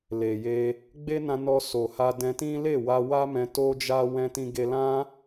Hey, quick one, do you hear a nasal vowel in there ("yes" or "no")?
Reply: yes